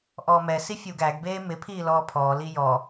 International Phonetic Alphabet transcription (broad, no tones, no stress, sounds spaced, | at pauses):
ʔ ɔː m ɛ s i fʲ u ɡ æ ɡ b eː m ɪ pʰ iː l ɔː pʰ ɔː l i j ɔ